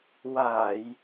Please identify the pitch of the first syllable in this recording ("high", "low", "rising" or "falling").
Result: low